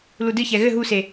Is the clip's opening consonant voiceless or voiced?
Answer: voiced